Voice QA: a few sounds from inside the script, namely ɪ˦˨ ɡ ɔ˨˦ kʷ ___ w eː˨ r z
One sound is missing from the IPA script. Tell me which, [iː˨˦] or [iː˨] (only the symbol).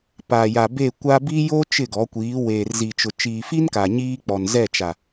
iː˨˦